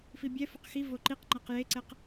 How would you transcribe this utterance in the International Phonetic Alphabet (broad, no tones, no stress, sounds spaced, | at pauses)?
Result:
f i bʲ ɛ f u q x i v o ǃ i q ŋ͡ǃ ɤ q j e ǀ ɛ q